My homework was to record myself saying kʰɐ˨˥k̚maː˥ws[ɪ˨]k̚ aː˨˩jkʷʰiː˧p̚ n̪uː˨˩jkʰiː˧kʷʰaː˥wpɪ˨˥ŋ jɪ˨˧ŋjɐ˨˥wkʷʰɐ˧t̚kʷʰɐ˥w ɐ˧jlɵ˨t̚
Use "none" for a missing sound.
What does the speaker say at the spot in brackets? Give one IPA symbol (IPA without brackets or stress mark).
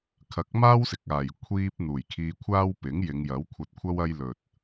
ɪ˨